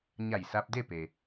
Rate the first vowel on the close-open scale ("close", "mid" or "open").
open